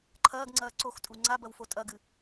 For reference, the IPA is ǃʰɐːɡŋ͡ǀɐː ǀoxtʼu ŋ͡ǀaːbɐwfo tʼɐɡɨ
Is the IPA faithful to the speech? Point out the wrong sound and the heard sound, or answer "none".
aː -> a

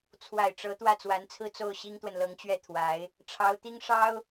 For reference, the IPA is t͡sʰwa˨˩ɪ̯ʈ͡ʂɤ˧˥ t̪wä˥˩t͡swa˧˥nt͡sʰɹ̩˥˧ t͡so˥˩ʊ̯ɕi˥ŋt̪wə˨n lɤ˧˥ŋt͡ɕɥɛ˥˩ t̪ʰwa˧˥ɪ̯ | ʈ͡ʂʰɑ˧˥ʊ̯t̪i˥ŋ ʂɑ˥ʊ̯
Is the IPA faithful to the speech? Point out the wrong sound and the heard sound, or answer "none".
none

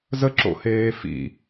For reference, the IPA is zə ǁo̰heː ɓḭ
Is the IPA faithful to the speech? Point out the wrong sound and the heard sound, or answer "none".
ɓ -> f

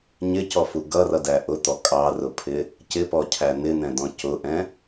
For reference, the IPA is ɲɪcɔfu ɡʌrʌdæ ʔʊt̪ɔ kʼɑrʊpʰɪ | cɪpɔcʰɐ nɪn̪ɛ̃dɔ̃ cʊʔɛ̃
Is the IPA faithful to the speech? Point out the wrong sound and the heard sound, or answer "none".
ɐ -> æ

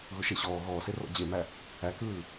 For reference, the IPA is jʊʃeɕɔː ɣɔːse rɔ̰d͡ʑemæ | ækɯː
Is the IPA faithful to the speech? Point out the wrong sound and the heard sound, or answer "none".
j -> ɣ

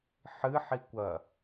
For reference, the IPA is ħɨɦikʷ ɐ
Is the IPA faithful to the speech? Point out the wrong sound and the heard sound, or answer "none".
ɦ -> ħ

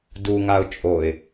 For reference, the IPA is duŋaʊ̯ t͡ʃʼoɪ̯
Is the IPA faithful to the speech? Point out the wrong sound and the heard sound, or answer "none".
none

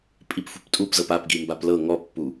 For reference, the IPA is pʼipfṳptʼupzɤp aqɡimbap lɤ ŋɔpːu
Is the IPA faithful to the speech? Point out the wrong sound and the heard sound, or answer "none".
q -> p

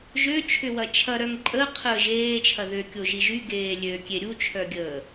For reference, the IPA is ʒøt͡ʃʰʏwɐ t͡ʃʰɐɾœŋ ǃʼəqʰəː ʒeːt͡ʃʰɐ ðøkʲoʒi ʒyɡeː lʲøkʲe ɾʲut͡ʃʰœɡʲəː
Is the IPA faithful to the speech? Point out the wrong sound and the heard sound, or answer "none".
none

